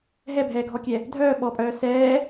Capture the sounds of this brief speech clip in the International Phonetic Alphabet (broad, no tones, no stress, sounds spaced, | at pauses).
ɦ ɛ bʱ ɛː ɡʱ ɔ kʲ ɛ | dʱ œː ɓ ɔ pʼ œː s ɛː